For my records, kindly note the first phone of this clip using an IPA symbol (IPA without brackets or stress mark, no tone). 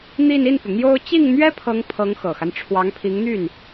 n̪